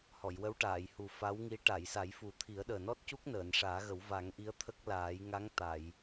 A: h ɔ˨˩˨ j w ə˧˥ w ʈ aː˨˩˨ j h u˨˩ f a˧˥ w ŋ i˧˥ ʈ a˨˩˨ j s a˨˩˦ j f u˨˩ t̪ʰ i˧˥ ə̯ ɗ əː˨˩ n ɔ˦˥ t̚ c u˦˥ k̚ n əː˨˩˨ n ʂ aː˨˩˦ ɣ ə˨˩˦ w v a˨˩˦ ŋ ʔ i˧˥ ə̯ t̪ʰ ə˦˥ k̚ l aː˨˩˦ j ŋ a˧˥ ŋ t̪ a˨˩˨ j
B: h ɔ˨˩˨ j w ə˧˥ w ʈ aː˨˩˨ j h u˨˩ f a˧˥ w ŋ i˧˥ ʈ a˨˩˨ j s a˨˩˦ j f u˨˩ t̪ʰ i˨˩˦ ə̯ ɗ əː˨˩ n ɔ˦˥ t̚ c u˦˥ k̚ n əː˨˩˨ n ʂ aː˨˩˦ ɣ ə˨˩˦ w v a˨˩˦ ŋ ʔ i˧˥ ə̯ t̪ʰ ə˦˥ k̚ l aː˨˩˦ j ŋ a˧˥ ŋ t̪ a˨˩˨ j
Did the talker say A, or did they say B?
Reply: B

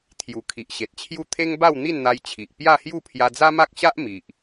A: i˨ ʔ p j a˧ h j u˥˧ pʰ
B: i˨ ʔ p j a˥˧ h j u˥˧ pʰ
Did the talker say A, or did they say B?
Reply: B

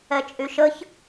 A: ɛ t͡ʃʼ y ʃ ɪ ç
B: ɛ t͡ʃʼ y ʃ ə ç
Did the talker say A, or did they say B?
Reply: B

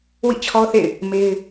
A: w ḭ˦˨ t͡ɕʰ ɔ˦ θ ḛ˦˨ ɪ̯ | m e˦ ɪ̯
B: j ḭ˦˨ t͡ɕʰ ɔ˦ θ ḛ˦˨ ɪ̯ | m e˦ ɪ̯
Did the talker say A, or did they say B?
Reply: A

